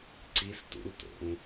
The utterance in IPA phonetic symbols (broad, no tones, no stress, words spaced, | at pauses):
ǀistṵlto̰ŋ